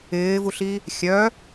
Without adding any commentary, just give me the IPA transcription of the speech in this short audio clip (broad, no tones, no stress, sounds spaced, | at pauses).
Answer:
ɪː v u ɬ i | xʲ œ